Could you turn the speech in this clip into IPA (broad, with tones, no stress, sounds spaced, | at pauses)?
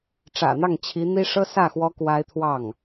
ʈ͡ʂ ä̰˨˩ n̪ ɑ˥˩ ŋ t͡ɕʰ i˧˥ n̪ i˥ ʂ ɤ˥ s ä˥˩ x w ɔ˥ k w a˥ ɪ̯ t̪ʰ w ɑ˥˩ ŋ